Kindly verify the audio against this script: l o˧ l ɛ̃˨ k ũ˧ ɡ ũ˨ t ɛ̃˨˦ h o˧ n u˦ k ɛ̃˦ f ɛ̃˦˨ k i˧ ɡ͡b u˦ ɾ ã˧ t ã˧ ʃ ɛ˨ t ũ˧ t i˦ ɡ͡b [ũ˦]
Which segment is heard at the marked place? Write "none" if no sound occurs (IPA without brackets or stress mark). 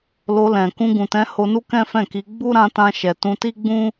ũ˦